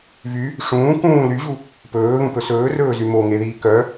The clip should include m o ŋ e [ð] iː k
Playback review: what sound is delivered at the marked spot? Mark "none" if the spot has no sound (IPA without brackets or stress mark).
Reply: ð